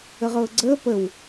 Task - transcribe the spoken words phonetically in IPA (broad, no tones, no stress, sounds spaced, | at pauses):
ə ʁ ɤː ɡ͡ǀ əː p ə w